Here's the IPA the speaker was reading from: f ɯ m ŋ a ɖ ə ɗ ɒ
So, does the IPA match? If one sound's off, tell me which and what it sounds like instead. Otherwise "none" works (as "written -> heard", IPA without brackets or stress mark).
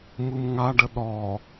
f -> m